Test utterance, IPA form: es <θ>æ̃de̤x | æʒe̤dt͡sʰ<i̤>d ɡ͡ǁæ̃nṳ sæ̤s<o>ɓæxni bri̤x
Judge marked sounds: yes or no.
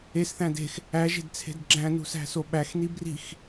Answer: yes, no, yes

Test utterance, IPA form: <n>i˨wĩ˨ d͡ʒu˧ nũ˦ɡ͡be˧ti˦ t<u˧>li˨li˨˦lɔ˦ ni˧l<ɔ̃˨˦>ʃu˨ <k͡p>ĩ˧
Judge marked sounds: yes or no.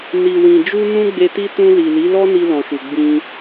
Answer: yes, no, no, no

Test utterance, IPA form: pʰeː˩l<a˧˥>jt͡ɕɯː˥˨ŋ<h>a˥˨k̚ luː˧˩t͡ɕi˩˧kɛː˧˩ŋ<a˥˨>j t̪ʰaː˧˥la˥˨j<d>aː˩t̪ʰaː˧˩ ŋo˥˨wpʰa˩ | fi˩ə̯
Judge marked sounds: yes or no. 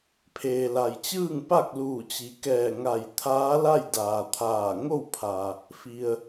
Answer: no, no, no, yes

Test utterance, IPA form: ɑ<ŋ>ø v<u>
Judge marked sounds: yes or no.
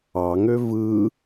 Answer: yes, no

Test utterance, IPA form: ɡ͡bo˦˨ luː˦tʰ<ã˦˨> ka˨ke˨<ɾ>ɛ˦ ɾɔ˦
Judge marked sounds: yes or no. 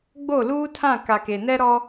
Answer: yes, no

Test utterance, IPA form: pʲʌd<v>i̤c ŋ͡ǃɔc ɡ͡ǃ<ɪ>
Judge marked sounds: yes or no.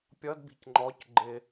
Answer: no, yes

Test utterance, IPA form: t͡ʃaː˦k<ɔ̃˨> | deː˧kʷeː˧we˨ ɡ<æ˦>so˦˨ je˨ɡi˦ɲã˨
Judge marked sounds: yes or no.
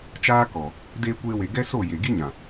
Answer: no, no

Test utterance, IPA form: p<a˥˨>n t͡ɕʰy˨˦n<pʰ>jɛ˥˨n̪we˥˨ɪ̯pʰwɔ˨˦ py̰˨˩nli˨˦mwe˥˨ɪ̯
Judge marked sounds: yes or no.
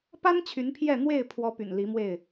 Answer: no, yes

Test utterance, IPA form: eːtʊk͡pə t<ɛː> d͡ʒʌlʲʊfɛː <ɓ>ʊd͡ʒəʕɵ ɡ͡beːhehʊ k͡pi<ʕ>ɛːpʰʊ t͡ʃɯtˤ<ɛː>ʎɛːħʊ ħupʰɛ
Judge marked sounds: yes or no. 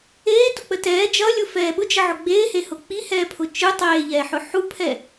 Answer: yes, yes, no, no

